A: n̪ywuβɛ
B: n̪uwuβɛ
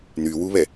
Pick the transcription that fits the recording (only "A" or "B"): A